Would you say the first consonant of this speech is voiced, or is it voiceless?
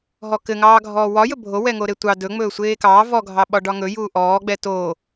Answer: voiced